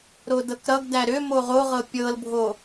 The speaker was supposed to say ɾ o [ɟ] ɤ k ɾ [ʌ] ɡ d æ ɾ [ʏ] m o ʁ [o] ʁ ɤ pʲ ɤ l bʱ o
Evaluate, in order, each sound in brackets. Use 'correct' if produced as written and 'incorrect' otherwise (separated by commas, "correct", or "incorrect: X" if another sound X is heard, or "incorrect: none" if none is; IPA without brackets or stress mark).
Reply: incorrect: d, correct, correct, correct